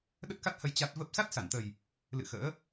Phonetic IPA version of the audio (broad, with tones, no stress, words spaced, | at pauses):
ɗə˦˥t̚ka˦˥t̚hə˧j t͡ɕa˦˥t̚ və˦˥p̚ sa˦˥t̚sa˧˩nt̪ə˨˩j | lɨ̰˧˨ xə̰ː˧˥